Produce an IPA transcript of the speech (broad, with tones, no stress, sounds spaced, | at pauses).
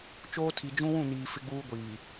t͡ʃ oː˦ tʰ i˨ d͡ʒ ũ˦ w ũ˦˨ n iː˨ f ɪ˦ ɡ͡b uː˦ ɡʷ iː˨